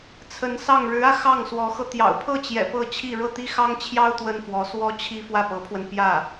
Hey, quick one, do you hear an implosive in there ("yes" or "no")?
no